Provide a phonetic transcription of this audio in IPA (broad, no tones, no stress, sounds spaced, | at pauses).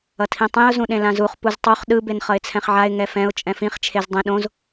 ʌ tʰ ĩ tˤ ĩ ʊ̯ z ũ ɗ ẽ l ã z u χ p u z tˤ o χ ɗ ɯ b e n χ ʌ ɪ̯ t͡sʰ ɛ̃ χ ʕ a ɪ̯ ŋ ɛ f ɛ̃ ʊ̯ t͡ʃʼ ɛ̃ f ĩ χ t͡ʃʰ e z dˤ ĩ ɗ õ z